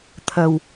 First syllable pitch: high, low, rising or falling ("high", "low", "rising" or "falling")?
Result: low